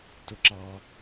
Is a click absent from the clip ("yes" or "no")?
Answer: no